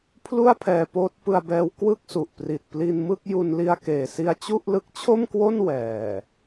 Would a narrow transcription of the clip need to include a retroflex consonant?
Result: no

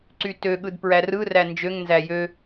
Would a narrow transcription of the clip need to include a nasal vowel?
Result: no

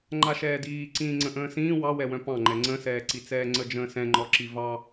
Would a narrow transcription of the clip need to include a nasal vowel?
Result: yes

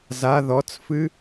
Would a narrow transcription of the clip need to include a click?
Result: no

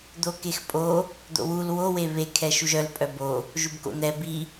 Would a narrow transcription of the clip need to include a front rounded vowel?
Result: yes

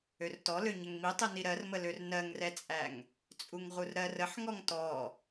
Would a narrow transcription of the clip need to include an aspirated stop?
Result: no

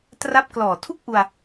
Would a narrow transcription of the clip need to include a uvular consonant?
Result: no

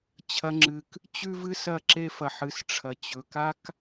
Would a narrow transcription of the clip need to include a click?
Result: yes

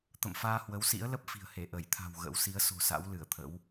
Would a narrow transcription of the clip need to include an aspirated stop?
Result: yes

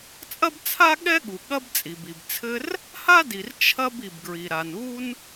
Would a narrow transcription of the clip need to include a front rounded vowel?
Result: no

